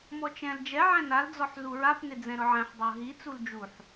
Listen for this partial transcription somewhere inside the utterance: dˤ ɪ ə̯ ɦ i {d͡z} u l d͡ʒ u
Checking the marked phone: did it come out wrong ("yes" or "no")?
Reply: yes